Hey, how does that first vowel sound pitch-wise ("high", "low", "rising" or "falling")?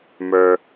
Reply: high